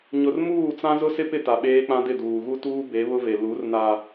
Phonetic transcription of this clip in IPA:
ɲ ʊ˨ r m uː˦˨ t͡s ã˦ z ʊ˦ s ɪ˦ p ɪ˦˨ t a˨ ɓ eː˦ k͡p ã˦ d ɪ˦˨ d uː˨ ɣ u˦ t uː˦ b e˨˦ β ʊ˦ v e˨ l u˨˦ r n a˨

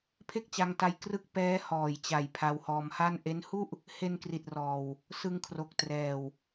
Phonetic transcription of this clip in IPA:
pʰ e˥˩ k̚ t͡ɕ a˧ ŋ t a˧ j k r ɯ˦˥ k̚ p ɛː˦˥ h ɔː˨˩ j t͡ɕ a˨˩ j pʰ a˧ w h ɔː˧ m h a˥˩ n ʔ e˦˥ n h u˥˩ ʔ | h e˧ n k r i˨˩ t̚ r ɔː˨˩ w | s ɯ˧ ŋ kʰ r o˨˩ k̚ t r ɛː˨˩ w

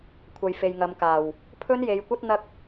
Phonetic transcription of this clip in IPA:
kʷʰ ɐ˨ j f e˨ j ŋ ɐ˨˧ m k aː˨˩ w | pʰ ɵ˥ n j e˨˧ j kʷ ɐ˥ t̚ n̪ ɐ˥ k̚

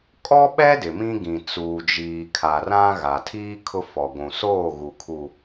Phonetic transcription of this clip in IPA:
kʼ ɔ˦ ɓ ɛ˦ d ɪ˨ m ĩ˦ ɡ ĩ˨ t͡s uː˨ d͡ʒ iː˨ kʰ a˨ r ã˦ ɣ a˨ tʰ iː˦ kʰ ʊ˦ f ɔ˨ ɡʷ ũ˨ s oː˦˨ ɣ u˨ kʰ u˨

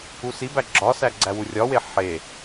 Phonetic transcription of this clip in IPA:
u s i b æ ɡ͡ǁ ɒ s æ ɡ͡ǀ æ w u rʲ ɒ w e ħ e

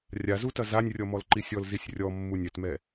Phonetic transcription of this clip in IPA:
rʲ a z u t ɐ z a nʲ rʲ ɔ m ɔ l ǃ i sʲ ɔ l z i sʲ rʲ ɔ mː u nʲ ɛ t m ɛ

